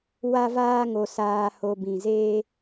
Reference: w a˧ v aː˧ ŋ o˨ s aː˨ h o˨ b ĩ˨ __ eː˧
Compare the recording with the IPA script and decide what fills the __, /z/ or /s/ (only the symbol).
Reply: z